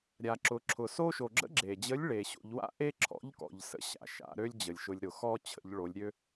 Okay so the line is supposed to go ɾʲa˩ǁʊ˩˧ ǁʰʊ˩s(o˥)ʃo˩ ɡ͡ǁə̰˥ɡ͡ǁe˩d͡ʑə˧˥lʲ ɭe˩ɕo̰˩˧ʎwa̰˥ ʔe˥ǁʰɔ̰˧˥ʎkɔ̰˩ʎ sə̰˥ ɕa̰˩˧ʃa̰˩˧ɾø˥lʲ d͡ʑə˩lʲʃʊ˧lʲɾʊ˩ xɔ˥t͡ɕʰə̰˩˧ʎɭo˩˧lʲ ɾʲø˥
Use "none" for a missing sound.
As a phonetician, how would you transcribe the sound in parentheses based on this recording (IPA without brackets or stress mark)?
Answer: o˥